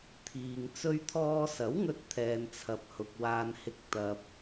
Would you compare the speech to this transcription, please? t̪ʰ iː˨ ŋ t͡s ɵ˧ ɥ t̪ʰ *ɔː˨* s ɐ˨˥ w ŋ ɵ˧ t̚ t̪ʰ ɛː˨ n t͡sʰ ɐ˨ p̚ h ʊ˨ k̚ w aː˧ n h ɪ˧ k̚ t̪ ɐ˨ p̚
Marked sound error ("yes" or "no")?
yes